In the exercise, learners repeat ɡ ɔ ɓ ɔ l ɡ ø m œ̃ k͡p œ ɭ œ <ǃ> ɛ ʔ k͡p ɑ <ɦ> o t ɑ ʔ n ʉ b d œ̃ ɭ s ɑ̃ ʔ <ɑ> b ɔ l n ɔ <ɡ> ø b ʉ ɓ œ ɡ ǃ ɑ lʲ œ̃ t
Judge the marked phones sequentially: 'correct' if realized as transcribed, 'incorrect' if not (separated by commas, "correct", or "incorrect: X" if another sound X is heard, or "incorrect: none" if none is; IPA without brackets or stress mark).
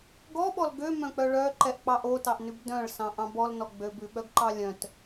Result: correct, incorrect: ʔ, incorrect: ɑ̃, incorrect: ɡ͡b